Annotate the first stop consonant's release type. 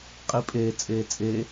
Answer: ejective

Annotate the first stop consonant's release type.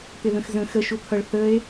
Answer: plain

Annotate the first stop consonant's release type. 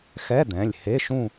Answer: plain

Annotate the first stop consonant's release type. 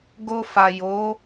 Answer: plain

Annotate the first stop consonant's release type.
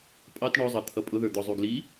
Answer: ejective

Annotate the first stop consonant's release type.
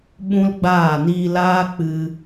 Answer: implosive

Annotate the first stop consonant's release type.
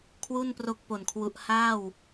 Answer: aspirated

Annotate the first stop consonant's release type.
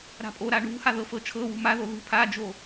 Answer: ejective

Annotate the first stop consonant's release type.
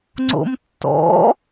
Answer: click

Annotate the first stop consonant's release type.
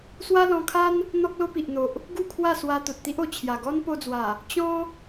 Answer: aspirated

